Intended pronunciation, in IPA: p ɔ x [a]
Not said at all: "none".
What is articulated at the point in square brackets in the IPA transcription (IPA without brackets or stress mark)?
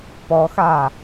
a